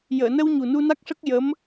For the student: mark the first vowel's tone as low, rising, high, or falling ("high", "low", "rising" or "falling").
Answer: low